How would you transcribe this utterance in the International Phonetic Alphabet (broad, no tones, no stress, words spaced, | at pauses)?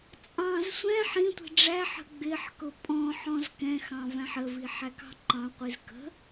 t͡sʼɑ̃z sʷɛ̃ ħĩtʷi̤ ɖ͡ʐæħə̤ ɡ͡bɪħkʊ pʼɔ̃ħ ɔ̃zkɛ̃xɑ̃ væ̃ħəvi ħækɑ̤ǃɑ̃qʷiz kə̤